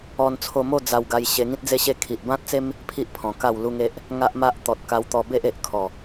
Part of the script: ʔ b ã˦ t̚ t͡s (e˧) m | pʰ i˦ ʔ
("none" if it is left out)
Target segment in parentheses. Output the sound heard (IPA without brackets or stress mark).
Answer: e˦